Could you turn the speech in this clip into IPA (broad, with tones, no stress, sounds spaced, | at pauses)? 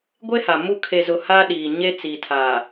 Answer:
ɡʷ e˦ h a˨ m u˦ kʰ e˨ z ʊ˨ h aː˦ ɗ iː˨ ɲ e˦ t͡s i˨ tʰ aː˨